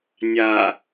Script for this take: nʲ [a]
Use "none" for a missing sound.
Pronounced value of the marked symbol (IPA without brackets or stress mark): a